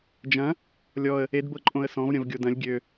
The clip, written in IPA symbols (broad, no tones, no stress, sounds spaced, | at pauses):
d͡ʒ ɐ̃ | lʲ ɔ ə̯ | e d b ɤ ǃʼ õ ə̯ s ɔ̃ v ɾʲ ɐ̃ v ɡʲ o d ɐ̃ lʲ ɡʲ ø